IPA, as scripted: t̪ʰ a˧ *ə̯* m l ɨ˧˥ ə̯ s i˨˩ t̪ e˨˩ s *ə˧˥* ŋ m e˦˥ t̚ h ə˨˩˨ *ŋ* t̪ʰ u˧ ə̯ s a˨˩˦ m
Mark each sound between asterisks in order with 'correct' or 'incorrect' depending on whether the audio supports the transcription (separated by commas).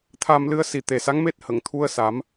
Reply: incorrect, incorrect, correct